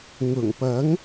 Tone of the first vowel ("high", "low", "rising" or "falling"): low